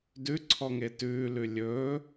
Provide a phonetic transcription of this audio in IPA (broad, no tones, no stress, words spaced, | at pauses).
dʉǀʰɔŋe tʉːlʉ lʲɵː